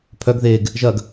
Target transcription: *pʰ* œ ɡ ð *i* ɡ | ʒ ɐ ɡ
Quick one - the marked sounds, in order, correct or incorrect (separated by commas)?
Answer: correct, incorrect